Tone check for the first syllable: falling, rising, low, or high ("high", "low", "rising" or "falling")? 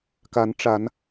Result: rising